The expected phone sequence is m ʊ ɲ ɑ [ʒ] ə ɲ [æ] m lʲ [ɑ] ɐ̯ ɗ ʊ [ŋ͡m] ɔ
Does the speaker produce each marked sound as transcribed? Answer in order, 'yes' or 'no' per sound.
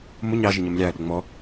yes, no, yes, yes

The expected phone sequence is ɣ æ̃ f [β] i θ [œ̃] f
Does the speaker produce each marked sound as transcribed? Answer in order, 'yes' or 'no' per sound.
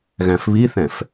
yes, no

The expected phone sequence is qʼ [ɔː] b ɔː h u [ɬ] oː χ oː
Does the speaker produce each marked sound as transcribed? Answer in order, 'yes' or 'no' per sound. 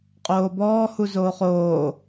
no, no

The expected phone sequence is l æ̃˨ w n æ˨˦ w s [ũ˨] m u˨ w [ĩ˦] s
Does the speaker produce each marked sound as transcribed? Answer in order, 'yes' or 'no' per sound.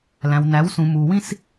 yes, yes

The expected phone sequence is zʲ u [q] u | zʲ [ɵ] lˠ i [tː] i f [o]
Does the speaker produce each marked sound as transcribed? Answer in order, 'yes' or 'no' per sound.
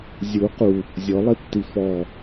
yes, no, yes, no

